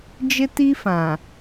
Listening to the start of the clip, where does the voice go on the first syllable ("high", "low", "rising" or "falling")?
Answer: high